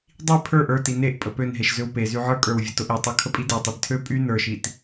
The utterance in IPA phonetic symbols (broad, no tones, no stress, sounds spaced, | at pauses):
dˤ i pʰ ə˞ ʔ ə˞ t i n e ʔ pʼ ə p ø n ɦ e ʃ z ø w p e z y ʕ ə˞ kʼ ə˞ w vʲ ə t ʊ ʔ i tˤ y kʰ ə pʼ i d e tˤ i d tʰ ø pʼ y n ə˞ ʃ i t